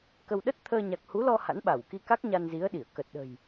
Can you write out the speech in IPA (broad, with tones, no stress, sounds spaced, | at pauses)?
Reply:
k ə˧ w ɗ ə˦˥ t̚ t̪ʰ əː˧ ɲ a˨˩ k̚ h u˨˦ l ɔ˧ h a̰˧˥ n ɓ a˧˩ w k i˧ k a˦˥ k̚ ɲ a˧ n z i˨˦ ə̯ ɗ i˧˩ ə̯ k ə˨˩ t̚ ɗ ə̤˨˩ j